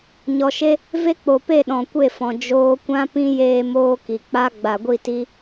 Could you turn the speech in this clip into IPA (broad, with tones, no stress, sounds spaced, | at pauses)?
ɲ ɔ˨ ʃ e˦ | v e˦ k͡p o˨ p e˦˨ ɗ ɔ̃˨ kʷ e˦˨ f ɔ̃˨ d͡ʒ oː˧ kʷ ã˦ p ĩ˦ j eː˦ m oː˦ k i˨ k͡p a˦ ɡ͡b a˨ ɡʷ i˦˨ t i˦